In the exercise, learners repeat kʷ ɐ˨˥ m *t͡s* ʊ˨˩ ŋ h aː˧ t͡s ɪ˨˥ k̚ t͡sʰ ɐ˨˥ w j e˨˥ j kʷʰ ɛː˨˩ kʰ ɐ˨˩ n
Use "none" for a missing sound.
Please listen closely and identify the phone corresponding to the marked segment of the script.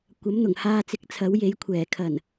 n̪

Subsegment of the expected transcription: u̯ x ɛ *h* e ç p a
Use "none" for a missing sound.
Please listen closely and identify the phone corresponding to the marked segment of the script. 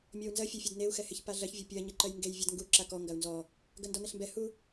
h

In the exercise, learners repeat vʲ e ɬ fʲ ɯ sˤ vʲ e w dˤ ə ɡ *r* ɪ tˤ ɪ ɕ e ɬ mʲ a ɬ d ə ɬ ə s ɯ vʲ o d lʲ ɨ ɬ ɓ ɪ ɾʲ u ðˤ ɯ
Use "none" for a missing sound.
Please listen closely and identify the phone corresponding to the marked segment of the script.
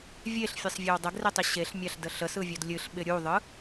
r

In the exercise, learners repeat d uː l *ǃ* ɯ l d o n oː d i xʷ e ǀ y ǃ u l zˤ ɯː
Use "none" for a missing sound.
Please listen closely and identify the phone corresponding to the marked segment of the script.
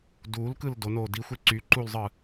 k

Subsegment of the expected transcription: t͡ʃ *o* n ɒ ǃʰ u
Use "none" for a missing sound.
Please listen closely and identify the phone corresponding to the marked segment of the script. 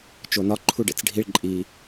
o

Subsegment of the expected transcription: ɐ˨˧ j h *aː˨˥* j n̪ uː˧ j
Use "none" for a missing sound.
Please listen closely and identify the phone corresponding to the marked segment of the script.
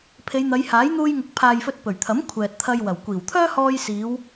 aː˨˥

